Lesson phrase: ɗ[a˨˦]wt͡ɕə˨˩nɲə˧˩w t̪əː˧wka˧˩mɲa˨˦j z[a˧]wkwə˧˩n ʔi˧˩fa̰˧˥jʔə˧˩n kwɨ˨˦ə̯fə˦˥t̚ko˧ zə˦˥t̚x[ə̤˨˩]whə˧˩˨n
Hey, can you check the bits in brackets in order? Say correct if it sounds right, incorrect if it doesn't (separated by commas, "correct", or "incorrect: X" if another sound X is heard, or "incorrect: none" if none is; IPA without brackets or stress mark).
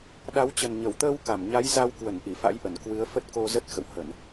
correct, correct, incorrect: ə̰˧˨